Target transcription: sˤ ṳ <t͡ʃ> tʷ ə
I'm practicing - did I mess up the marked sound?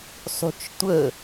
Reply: no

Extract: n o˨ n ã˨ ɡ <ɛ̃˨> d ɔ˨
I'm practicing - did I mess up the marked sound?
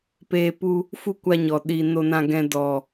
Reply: no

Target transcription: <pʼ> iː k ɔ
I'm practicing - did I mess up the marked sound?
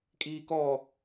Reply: yes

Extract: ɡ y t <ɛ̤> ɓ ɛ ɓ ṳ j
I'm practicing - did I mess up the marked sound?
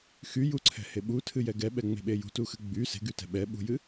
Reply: no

